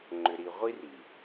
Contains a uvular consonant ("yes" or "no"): yes